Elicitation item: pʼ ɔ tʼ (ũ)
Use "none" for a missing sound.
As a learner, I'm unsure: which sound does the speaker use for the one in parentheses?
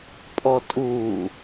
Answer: u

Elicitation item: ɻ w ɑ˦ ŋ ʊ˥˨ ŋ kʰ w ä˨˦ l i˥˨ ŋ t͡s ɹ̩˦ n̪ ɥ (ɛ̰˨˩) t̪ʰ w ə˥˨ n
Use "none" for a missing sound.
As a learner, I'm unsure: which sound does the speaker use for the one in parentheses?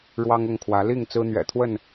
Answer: ɛ̰˨˩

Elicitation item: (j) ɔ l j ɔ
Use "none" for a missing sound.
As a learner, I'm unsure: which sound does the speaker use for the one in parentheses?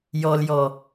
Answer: j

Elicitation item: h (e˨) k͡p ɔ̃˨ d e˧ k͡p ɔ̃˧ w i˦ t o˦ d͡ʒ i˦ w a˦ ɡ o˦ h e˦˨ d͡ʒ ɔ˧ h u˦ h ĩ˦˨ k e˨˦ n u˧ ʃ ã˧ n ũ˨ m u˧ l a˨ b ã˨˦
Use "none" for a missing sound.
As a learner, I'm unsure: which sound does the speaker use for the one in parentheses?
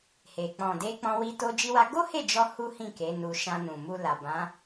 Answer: e˨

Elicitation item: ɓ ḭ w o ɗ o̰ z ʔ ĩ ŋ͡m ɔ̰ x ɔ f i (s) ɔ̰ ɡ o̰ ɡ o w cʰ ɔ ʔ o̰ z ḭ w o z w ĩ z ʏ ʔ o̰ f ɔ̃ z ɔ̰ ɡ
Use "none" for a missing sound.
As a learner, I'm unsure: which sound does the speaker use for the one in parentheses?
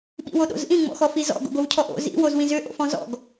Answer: z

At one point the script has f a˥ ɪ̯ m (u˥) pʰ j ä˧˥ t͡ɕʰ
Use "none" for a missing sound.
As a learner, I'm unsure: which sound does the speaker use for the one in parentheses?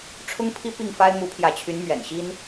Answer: u˧˥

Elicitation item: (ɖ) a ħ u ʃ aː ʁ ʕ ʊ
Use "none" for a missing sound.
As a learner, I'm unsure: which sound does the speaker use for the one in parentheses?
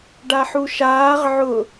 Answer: ɖ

